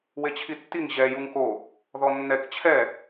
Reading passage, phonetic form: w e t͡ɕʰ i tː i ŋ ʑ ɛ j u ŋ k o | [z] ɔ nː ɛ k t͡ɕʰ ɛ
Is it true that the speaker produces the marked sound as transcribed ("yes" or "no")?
no